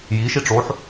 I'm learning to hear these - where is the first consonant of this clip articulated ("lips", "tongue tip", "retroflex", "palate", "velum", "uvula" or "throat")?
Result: palate